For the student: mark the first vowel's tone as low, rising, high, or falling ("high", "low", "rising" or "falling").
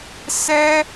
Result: high